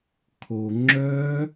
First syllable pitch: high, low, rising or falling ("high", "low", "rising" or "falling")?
low